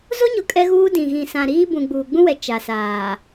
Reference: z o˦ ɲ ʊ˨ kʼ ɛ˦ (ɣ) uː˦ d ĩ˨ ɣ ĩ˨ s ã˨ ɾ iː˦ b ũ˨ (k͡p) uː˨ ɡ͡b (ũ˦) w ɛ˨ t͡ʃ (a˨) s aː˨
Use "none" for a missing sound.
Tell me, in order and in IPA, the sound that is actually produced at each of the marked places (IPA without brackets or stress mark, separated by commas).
ɣ, ɡ͡b, ũ˦, a˨